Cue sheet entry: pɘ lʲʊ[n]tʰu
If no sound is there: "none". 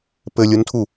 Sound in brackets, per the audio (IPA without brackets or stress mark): n